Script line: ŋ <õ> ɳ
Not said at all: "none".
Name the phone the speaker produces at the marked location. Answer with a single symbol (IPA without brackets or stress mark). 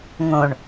õ